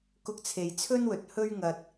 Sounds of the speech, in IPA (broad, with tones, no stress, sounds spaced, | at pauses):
k ʊ˧ k̚ t͡sʰ e˨ j t͡sʰ ɵ˥ n w ɵ˨˥ t̚ h ɵ˥ ɥ ŋ ɐ˧ t̚